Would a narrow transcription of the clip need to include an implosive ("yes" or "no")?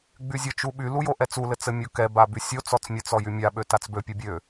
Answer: yes